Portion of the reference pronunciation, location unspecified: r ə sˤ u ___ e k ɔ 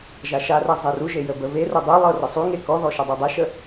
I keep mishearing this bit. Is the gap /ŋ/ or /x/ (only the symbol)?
ŋ